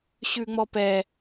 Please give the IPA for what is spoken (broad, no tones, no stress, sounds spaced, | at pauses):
ɕ ʉ ŋ͡m ɔ p ɛ